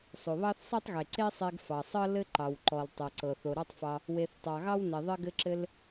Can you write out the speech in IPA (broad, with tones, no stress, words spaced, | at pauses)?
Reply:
sˤo˩βɑ˥θ sˤe˥tˤɣe˩ ǀe˥sˤe˧ɡ fɑ˩sˤɤ˥ lɘ˥ ǃɑ˩wǃɔ˩l tˤɤ˩ǀɤ˩θ o˩ɾɑ˥tˤfɑ˧ | we˩θ tˤɑ˩ɣɑ˥wne˩ ðˤɘ˧ɡɘ˧ǁɘ˧l